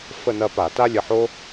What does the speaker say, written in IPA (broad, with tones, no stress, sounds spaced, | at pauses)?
f ə˥˧ n ɐ˥˧ p a˧˩˧ t a˥ lʲ ə˩˧˩ ħ o˥